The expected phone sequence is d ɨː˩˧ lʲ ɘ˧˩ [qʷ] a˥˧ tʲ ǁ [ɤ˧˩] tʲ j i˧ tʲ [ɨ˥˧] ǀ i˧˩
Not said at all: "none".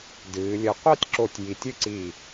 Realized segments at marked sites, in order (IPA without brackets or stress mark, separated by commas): qʷ, o˧˩, ɨ˥˧